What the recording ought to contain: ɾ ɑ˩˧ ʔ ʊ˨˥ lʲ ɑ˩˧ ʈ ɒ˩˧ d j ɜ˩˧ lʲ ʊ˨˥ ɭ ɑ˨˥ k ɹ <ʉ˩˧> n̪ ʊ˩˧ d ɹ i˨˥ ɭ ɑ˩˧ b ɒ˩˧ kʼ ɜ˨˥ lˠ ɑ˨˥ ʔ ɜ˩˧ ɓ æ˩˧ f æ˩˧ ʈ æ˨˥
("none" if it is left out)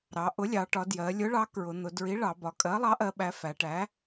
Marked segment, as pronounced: ʊ˩˧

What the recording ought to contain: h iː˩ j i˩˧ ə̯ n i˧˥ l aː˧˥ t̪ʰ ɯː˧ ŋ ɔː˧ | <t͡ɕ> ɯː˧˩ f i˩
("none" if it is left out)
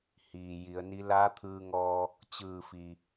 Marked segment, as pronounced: t͡ɕ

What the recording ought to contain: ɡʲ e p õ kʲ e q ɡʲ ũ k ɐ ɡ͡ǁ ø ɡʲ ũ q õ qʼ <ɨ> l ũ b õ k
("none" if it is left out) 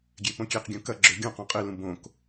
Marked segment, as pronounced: ɨ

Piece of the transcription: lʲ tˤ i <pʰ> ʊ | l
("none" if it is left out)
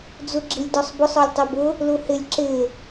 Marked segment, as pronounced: b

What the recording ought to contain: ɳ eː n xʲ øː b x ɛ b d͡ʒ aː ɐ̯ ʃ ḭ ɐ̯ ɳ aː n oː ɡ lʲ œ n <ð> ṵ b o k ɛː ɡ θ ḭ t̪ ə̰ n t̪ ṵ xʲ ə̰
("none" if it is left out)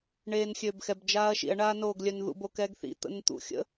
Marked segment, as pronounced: ð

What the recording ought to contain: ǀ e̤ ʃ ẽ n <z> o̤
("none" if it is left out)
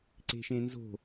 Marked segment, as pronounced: z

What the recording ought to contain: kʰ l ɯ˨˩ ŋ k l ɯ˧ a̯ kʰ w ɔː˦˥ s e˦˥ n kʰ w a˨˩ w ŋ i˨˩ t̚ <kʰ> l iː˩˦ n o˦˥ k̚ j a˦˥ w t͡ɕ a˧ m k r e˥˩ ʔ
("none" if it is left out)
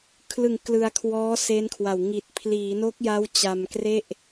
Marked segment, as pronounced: pʰ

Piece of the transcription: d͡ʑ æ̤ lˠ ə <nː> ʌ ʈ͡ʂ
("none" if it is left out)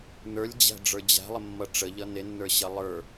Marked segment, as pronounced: mː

